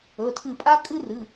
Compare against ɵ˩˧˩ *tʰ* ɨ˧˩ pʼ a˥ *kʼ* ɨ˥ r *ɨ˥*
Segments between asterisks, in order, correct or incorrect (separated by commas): correct, correct, incorrect